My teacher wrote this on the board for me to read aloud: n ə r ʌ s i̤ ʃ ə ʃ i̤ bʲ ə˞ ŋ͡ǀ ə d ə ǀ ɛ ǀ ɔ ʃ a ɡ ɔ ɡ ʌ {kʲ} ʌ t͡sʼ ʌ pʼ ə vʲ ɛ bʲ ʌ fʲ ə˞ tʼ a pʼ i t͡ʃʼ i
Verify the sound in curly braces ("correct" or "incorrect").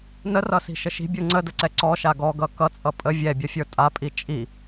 incorrect